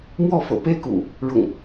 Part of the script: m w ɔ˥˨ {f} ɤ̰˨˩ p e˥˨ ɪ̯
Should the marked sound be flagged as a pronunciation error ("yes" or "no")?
no